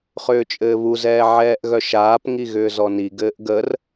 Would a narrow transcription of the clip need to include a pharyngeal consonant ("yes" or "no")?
yes